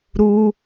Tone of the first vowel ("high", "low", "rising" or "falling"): high